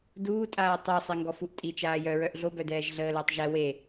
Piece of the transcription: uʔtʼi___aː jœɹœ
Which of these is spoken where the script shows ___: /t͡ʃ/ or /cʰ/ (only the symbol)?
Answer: t͡ʃ